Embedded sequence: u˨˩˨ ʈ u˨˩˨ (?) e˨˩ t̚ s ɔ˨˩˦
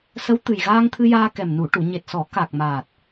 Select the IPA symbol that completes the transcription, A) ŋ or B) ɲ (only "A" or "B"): B